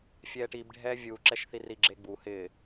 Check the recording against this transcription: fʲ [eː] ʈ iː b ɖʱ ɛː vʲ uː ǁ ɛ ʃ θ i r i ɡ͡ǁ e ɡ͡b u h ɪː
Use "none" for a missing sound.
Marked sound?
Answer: ɛː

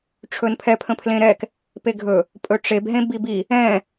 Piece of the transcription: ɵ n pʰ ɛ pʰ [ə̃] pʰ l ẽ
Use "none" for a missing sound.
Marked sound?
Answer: ə̃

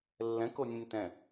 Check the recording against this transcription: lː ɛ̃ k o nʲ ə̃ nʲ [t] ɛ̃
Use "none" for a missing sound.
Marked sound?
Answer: t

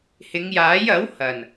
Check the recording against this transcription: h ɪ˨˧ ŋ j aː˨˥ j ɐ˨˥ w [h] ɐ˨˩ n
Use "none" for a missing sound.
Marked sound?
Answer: h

